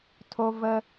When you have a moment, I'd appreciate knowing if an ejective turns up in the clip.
no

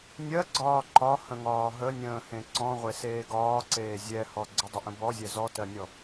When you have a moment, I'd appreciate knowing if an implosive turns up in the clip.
no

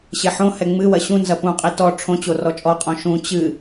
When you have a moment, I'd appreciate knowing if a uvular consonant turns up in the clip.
yes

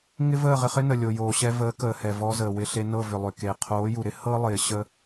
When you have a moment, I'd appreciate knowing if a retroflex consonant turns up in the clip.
no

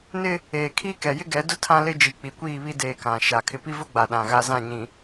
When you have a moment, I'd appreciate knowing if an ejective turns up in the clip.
no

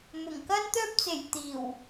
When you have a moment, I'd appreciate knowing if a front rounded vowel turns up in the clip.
yes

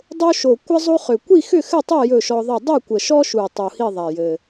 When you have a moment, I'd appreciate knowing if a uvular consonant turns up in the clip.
yes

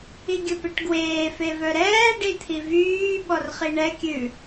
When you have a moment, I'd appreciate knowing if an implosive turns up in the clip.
yes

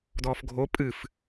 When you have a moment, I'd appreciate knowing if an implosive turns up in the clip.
no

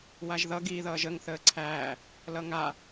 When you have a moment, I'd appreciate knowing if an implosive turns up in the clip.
no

